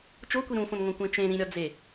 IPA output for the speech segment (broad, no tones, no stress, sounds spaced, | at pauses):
t͡ʃ o kʷ i ɾ ũ f õ n ŋ õ kʷ ẽ t͡ʃ ẽ ɾ ĩ ɾʲ ɒ d͡z e